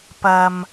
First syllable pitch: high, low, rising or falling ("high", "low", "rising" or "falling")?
low